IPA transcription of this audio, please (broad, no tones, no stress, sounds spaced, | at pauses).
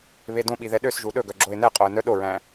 β e d õ ɓ i ð ɛ ɗ ø s ʒ u ɗ ɵ ɡ œ ɡ͡ǁ o ɪ̯ n ɛ qʼ o ə̯ n œ ɗ o ɹ æ̃